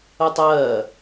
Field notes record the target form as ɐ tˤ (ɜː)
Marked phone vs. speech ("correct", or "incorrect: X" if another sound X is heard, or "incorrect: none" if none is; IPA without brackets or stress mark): correct